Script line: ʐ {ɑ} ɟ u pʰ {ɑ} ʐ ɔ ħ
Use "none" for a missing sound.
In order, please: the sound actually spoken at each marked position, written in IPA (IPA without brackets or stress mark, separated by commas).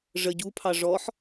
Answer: ə, ɑ